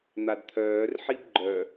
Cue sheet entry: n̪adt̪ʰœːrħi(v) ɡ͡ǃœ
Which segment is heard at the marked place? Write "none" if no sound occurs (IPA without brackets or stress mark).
b